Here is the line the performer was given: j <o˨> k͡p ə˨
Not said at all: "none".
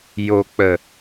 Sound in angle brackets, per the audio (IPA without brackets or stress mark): o˨